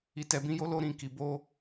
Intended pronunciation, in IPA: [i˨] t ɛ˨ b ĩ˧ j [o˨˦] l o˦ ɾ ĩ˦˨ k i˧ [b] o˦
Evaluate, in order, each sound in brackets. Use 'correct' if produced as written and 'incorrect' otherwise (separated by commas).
correct, incorrect, correct